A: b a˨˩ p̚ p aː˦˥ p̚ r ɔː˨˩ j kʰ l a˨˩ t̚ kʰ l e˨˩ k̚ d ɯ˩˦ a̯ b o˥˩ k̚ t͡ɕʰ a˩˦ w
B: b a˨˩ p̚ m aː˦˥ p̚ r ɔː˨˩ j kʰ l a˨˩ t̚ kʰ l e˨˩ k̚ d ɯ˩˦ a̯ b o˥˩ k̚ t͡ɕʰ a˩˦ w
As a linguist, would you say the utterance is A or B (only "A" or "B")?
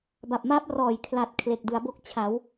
B